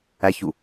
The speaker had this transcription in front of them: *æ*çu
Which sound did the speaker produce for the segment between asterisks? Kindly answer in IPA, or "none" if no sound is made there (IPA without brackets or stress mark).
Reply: æ